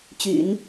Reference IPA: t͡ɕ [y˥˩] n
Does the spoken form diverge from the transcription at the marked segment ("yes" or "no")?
yes